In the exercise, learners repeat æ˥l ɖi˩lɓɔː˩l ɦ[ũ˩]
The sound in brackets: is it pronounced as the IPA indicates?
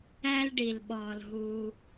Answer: no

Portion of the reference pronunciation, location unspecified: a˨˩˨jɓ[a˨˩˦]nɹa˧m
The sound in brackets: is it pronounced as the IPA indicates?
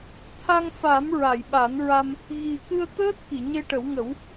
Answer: yes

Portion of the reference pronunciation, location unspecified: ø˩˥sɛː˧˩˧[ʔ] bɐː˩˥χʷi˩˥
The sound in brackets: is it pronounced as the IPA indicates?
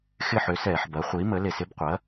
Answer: no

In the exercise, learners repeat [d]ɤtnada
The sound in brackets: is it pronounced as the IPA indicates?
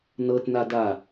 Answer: no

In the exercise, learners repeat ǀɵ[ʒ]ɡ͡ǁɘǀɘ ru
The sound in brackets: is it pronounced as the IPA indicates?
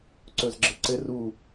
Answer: no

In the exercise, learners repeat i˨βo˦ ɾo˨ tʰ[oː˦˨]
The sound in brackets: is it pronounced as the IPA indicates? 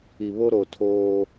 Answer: no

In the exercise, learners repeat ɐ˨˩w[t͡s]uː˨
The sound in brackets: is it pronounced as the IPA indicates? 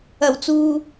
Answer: yes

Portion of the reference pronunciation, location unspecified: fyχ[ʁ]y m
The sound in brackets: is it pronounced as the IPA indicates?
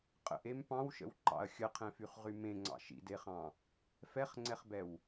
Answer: yes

